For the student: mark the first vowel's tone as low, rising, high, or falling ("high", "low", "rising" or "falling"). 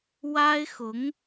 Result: high